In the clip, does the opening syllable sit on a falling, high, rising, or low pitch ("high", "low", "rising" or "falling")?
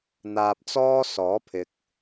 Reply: low